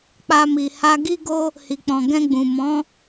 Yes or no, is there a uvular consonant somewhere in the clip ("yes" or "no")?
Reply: no